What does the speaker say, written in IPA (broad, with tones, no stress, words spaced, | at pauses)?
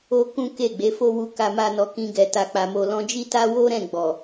o˦ kũ˦ ke˦˨ɡ͡be˨˦fo˦wu˧ ka˧ma˧nɔ˨ kĩ˧ɡɛ˨ ta˨k͡pa˨mo˨ lɔ̃˧d͡ʒi˦ ta˦wo˦ ɾɛ̃˦˨ɡ͡bɔ˨